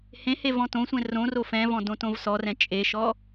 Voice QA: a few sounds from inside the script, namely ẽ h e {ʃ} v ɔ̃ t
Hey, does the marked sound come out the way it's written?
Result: no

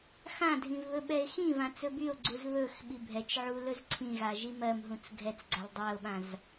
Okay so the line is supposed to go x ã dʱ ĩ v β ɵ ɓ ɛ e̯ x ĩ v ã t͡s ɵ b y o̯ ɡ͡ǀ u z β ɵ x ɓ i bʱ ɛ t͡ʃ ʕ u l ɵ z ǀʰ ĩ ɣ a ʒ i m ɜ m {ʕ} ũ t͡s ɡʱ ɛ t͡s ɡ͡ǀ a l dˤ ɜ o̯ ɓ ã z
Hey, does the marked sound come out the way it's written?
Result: no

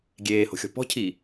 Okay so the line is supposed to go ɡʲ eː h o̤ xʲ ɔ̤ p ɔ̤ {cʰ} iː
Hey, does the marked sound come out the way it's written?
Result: yes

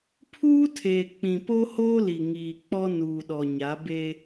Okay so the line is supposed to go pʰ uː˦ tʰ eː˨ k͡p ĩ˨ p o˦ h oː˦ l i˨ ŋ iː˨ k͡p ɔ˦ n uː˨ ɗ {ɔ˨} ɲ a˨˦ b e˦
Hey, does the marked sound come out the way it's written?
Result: yes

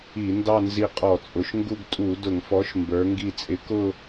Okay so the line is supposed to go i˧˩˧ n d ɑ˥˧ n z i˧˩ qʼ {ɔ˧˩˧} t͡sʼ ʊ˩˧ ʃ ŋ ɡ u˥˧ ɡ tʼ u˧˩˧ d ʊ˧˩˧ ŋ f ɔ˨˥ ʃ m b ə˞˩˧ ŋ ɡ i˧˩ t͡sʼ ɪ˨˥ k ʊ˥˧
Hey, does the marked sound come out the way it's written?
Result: yes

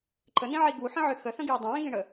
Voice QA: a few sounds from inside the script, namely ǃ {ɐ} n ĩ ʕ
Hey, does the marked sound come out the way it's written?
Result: no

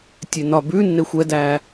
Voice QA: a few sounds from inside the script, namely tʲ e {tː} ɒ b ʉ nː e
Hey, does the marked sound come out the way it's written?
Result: no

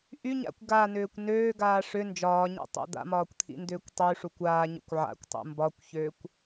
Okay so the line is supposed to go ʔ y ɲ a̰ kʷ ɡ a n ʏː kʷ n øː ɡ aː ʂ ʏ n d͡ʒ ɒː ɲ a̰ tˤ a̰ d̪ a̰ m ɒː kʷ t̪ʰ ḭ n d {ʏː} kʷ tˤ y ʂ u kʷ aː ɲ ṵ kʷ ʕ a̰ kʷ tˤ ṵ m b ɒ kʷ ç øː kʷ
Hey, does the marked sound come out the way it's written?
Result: yes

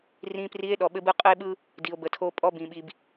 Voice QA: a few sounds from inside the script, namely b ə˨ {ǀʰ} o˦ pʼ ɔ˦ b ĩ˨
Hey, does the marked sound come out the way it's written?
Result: no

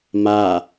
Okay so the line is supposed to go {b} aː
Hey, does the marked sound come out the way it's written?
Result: no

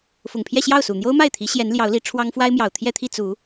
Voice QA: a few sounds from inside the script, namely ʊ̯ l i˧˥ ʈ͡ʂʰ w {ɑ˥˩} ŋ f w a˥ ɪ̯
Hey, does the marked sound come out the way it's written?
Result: no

